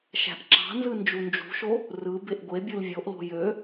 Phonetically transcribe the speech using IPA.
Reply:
ʃ æ̤ ʔ ǁ ɑ̤ n z ɯ n d͡ʒ u n d͡ʒ ṳ ʃ o | r ɯ b e ʔ ɡʷ e bʲ ɯ l vʲ o ʔ l o̤ j ø

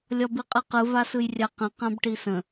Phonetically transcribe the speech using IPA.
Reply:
lʲ ɒ b i qʼ ɯ q ɯ v a s ɯ j rʲ a q ə̃ q ã b ʈ i s ə̃

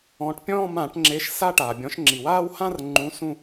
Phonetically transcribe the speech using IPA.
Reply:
ɔ̃ː˨˦ ʈ pʲ ɔ̃ː˥˧ m ãː˧˩˧ ʈ ŋ͡ǁ e˨˦ ʃ s a˥˧ ʈ aː˩ bʲ ɔ̃˨˦ ʃ ŋ͡ǁ i˩ w aː˥˧ w h ã˥˧ r ŋ͡ǃ ũ˨˦ s ũ˥˧

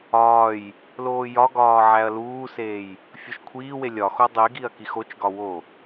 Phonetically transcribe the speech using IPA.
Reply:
ɒː j | l oː j ɒ ɡ ɒː ʕ æ ɐ̯ l uː s eː j | fʲ o ʃ kʷʰ iː w e lʲ ɒ x o dˤ i ɡ i ɐ̯ k i x o t͡ʃ ɡ ɒ w o

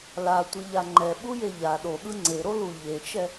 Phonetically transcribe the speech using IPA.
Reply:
l a tʷ ɯ ʎ a ŋ͡ǃ ɛ ɓ u j e ʎ a ɗ o ɠ ɯ ŋ͡ǀ e ɾ o l u ʎ e t͡ʃ ɛ

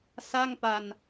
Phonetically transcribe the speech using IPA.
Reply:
s a˥˩ ŋ p a˧ n

